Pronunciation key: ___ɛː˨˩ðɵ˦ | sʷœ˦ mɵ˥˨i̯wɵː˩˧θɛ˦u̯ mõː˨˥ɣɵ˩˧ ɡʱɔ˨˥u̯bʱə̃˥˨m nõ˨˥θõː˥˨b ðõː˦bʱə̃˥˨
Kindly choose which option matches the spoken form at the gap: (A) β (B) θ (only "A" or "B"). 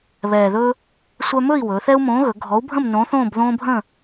A